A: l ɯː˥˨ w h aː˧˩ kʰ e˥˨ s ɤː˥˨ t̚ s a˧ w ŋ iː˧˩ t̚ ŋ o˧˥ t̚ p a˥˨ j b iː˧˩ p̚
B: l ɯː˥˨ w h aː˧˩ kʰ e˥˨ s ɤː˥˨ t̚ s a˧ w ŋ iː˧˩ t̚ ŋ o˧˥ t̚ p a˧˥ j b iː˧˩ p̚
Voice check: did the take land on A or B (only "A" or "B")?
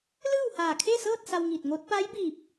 B